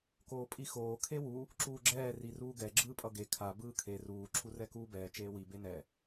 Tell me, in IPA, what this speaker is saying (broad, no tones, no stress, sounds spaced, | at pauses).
k oː pʼ i x oː kʰ e w u | ǁ uː ɡ͡ǁ ɛː r i r uː ɡ ɛ ɡ͡ǁ ɯː pʼ ʌ ɡ e kʰ a b ɯː kʰ e r uː ǁʰ u r ɛ k uː b ɛː t͡ʃ eː w i b e n ɛ